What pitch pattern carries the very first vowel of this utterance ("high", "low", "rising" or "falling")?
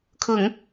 low